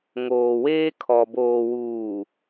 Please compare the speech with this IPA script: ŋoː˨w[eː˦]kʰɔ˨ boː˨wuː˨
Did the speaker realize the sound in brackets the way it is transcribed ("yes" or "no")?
yes